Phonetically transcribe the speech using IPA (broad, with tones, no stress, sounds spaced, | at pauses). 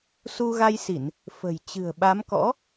s u˧ ɣ a˧ j s i˧˩˨ n | f ə̤˨˩ j t͡ɕ ɨ̤˨˩ ə̯ ɓ a˨˦ m k ɔ̰˧˥